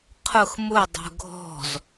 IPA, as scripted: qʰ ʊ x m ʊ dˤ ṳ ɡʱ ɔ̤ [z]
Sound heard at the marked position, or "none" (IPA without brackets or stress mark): z